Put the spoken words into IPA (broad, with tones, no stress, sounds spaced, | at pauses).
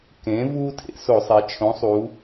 k ẽ˩˧ v uː˦ tʰ ḛ˧˩˧ s o˧˩˧ sˤ e˩˧ t͡ʃʰ õ˩˥ sˤ u˩˧